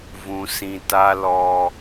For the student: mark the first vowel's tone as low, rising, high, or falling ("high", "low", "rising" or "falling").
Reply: high